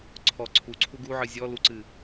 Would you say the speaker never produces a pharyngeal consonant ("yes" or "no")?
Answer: no